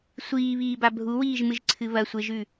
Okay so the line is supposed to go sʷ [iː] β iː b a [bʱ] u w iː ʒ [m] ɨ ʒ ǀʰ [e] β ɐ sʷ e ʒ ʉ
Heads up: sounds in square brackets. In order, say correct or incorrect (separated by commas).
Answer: correct, correct, correct, incorrect